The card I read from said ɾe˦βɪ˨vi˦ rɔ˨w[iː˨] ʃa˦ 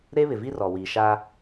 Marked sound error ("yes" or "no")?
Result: no